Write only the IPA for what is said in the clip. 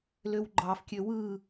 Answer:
løwɡ͡ǃɑfkʲø wɯ

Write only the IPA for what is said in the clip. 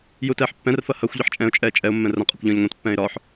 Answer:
jutɛːħpːɛ̃rfɐ hɐxʷ ʎɐħt͡ʃʼɛ̃ʊ̯t͡ʃʼɛː t͡ʃʼɛʊ̯mːɛ̃ rɐ̃qʼɐkʷ ʎɐ̃ːʎŋʷɛ̃tpːɛ̃ːɪ̯ ɾɒːħ

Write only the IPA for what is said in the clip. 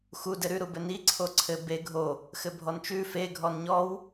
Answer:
xu dɘɾʉ ɾubɘni ǀʰoǀʰɘ be ɡʱo | xɘbʱɔnt͡ʃʉ fe ɡʱɔnɲɔw

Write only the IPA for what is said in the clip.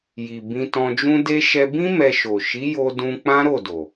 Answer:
ji˨ bĩ˧tɔ̃˧d͡ʒũ˦ de˦ ʃɛ˧bĩ˦ mɛ˧ʃo˨ ʃi˨˦jo˧ dũ˧ k͡pã˦ɾo˦˨do˨

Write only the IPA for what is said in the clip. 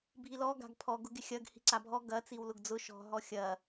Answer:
bʱilɔ ɡa̤ɡpʰɔ ɡʊɡɪxʲɐɡ hi̤ǀabʱɔ ɡɐ t͡siwlʊɡd͡zʊ ʃɔ̤ ɦɔxʲɐ

